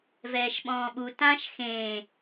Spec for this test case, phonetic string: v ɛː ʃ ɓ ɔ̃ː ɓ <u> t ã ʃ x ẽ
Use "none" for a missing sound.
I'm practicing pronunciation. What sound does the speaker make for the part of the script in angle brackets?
u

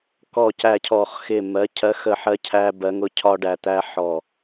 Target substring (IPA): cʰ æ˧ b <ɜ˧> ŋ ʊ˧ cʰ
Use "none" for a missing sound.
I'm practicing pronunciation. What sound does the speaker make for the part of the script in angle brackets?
ɜ˩˧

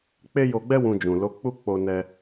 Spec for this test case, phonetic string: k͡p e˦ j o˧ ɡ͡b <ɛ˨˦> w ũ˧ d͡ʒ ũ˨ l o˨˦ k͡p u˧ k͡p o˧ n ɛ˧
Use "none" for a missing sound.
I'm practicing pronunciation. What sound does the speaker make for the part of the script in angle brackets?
ɛ˦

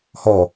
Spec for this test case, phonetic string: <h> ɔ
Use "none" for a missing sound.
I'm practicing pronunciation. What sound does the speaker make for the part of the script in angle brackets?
h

